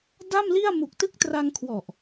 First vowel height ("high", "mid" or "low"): low